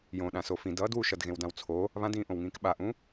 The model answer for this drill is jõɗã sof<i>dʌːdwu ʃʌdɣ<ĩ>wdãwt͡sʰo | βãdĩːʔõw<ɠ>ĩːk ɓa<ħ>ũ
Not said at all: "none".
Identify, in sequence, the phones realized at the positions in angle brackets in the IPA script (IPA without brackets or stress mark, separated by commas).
ĩ, ẽ, ŋ, ʔ